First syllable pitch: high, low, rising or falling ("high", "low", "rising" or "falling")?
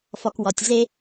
low